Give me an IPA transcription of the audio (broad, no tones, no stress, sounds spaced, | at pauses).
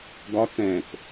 ɡ ɒ t͡s ɛ̃ː t͡s